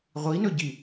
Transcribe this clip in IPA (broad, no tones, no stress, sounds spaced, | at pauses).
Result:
ʁʷ i n ɵ ɟ i